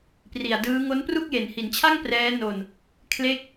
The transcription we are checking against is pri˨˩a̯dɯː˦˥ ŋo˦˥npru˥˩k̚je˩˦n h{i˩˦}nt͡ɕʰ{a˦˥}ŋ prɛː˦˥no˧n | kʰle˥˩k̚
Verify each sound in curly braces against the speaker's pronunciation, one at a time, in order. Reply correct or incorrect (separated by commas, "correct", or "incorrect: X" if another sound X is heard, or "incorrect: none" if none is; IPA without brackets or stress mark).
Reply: correct, incorrect: a˥˩